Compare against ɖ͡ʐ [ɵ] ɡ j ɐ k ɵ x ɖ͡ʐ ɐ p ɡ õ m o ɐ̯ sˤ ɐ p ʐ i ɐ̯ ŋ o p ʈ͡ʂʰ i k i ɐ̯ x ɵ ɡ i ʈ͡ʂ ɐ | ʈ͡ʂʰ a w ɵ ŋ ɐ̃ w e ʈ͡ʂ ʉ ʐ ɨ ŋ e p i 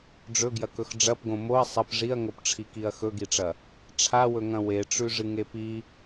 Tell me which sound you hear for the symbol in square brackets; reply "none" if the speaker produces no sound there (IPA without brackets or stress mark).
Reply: ɵ